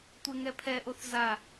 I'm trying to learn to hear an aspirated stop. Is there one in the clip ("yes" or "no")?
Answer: yes